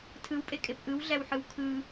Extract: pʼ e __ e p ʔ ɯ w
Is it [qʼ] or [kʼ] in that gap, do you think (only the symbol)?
kʼ